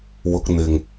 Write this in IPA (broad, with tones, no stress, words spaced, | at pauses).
wʊ˧k̚n̪ɪ˨ŋ